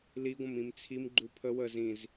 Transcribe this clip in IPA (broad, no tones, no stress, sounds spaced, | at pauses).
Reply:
l i ɡʷ ə̃ m ĩ m t͡sʰ i m ɡ͡ǃ u pʰ ə w ə z ĩ z